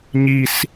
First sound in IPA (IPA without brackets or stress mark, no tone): ɲ